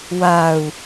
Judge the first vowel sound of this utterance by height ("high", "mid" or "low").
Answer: low